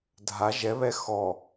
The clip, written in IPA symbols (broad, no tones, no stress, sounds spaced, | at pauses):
dʱ a ʒ ɛ β ɛ x ɔ